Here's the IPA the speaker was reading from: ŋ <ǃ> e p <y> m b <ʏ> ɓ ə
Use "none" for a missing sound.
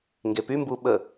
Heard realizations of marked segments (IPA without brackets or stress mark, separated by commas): ɡ, y, u